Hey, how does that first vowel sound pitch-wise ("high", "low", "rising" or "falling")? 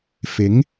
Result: rising